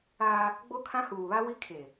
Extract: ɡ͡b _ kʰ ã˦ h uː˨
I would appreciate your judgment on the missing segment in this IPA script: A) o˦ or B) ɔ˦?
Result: A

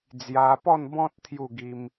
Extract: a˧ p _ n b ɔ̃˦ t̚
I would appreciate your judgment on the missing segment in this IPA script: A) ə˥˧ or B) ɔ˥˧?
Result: B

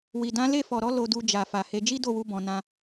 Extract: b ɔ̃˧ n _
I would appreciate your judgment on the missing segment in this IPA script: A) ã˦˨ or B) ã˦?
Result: B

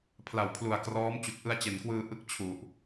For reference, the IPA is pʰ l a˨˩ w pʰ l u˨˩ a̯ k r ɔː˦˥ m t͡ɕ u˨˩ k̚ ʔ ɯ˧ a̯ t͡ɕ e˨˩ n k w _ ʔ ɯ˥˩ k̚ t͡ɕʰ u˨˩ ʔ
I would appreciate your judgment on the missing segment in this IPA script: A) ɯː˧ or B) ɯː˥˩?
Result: A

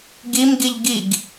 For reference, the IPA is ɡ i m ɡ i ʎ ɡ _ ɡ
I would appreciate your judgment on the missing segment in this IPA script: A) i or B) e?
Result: A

